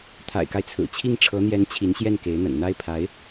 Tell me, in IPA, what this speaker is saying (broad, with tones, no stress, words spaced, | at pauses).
t̪ʰa̰˨˩ɪ̯ka˦ɪ̯t͡sʰɹ̩˨˩ t͡ɕʰi˥˩ŋʈ͡ʂʰɤ˧˥n̪jɛ˧˥n t͡ɕʰi˧˥nɕjɛ˥˩nke˧˥ɪ̯n̪ə̰˨˩n n̪a˥˩ɪ̯pʰa˧˥ɪ̯